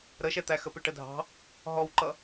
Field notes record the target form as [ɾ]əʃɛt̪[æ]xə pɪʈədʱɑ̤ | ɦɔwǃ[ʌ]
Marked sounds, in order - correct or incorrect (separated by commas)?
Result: correct, correct, correct